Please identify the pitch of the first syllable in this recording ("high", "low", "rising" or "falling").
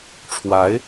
rising